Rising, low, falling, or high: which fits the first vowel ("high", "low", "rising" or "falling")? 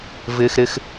low